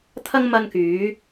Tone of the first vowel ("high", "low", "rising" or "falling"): high